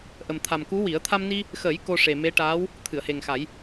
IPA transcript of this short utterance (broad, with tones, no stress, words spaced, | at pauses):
ʔə˨˩mt̪ʰa˨˩m ku˧˥wi˨˩˦ə̯ t̪ʰa˧mni˧ | xə˨˩˦j ko˧ʂe˨˩me˧˥ ʈaː˧˥w | t̪ʰɨ˨˩˨ə̯he˨˩ŋxa˨˩˦j